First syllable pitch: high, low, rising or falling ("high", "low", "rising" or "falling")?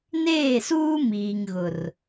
falling